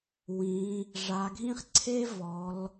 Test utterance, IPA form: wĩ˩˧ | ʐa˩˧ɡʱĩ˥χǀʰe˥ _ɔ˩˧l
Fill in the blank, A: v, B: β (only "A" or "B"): A